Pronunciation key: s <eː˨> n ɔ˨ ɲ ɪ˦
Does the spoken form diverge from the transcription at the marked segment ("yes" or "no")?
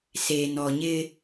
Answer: no